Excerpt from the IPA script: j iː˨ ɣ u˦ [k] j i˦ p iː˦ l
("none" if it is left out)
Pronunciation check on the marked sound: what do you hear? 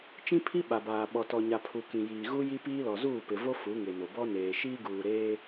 none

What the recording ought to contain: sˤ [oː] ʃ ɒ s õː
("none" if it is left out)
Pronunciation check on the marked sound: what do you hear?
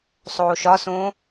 oː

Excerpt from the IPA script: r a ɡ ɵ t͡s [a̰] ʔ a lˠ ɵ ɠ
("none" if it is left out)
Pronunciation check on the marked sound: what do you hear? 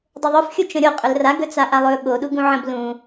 a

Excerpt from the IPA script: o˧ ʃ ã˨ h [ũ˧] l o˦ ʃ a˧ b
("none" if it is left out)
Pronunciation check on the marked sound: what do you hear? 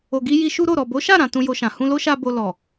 ũ˧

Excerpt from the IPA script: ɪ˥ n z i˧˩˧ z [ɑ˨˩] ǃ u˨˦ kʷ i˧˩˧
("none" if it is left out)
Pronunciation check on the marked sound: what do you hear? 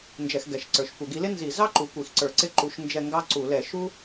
ɑ˥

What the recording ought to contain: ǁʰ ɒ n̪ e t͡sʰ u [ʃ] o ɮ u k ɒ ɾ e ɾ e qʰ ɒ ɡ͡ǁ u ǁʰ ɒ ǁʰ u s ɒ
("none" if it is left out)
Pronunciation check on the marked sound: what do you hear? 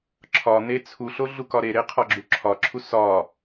ɬ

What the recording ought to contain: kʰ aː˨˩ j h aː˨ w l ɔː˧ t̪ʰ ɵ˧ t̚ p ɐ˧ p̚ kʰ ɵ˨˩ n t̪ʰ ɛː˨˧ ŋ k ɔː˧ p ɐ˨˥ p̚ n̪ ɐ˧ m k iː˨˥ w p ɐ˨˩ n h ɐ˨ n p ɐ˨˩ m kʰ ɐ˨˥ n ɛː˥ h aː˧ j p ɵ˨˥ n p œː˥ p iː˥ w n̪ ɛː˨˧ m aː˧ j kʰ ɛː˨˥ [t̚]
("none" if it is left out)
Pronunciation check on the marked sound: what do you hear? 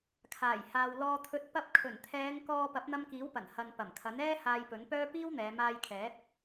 t̚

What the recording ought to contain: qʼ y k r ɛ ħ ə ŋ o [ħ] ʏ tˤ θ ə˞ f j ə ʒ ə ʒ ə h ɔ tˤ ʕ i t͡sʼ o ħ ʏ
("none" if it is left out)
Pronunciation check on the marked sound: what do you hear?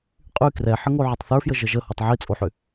ʕ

